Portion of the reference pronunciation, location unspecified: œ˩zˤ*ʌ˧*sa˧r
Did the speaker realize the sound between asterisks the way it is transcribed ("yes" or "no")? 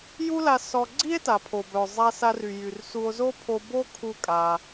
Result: no